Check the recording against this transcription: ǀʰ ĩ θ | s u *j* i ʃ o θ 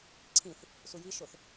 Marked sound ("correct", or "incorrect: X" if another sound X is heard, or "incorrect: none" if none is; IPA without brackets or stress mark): correct